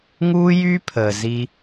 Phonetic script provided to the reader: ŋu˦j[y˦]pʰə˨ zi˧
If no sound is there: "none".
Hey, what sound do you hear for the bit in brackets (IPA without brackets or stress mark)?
y˦